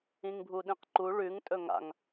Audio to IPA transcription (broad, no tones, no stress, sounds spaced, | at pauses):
ĩ ŋ bʱ u ɗ ĩ q ǃ u ɭ ʉ ŋ tʼ ɵ ŋ a̰ ŋ